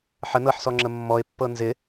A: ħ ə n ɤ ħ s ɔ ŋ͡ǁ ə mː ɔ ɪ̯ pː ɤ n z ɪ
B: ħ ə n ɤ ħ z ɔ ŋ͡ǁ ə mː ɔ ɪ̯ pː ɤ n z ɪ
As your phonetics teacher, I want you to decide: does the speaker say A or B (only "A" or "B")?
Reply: A